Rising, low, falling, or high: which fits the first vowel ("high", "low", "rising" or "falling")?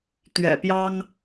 low